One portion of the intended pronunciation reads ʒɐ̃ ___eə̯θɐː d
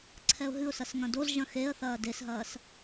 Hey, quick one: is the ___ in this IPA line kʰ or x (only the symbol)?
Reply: x